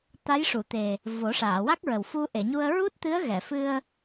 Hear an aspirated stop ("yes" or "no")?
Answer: no